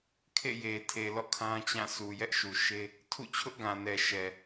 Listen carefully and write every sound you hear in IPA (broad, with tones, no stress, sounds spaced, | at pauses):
kʰ ḛ˦˨ j e˨ tʰ e˨ l ɔ̰˦˨ kʰ ã˦ t͡ɕ ã˦˨ sʰ u˨ j ɛ˦ ʔ ʃ u˨ ʃ e˦ | tʰ ṵ˦˨ t͡ɕʰ ʊ˦ ʔ ɡ ã˨ n ɛ˨ ʃ ɛ˨